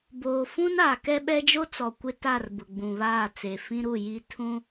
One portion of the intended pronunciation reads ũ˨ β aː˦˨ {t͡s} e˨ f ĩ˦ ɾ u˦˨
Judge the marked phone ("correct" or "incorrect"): correct